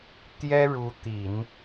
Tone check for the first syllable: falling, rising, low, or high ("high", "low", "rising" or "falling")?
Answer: high